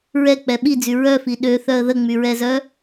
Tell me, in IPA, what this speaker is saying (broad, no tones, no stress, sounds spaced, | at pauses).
ɹ ɛ k͡p ɛ ɓ i d͡z y ɹ œ f i ɗ ø θ œ ə̯ ð ə ŋ͡m y ɹ ɛ z œ